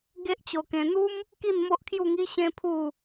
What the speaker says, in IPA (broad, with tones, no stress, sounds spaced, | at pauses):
ɡ e˦ ʔ t͡ɕ o˧ k ẽ˧ n̪ u˦ m | k i˥˧ n m o˦ ʔ kʰ j u˥˧ ŋ i˦ ɕ ẽ˦ pʰ u˥˧